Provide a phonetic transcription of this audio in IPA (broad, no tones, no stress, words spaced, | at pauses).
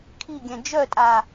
kʰiɡʲɛ̃ d͡ʒœtʼaː